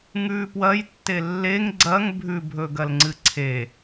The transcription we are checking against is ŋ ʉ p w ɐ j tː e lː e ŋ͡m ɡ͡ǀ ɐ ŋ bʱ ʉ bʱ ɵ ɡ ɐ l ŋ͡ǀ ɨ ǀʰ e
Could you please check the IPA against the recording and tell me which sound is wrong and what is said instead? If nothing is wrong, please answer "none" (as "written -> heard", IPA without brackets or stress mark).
ŋ͡m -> ŋ